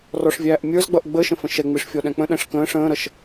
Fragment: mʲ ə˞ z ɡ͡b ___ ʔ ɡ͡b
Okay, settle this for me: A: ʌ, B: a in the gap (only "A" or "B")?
A